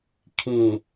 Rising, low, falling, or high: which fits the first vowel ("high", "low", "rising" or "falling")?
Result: low